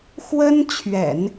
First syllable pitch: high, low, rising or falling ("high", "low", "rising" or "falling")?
high